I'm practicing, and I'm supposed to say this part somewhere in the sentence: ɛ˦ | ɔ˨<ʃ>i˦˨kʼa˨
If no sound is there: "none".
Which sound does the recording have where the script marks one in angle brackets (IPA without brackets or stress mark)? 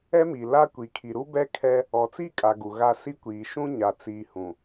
t͡s